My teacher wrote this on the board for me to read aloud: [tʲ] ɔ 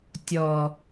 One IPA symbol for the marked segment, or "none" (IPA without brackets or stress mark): tʲ